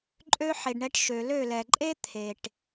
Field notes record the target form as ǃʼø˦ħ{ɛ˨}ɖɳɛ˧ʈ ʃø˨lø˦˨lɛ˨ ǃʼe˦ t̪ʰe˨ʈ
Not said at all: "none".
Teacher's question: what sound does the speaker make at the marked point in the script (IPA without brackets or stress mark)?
e˨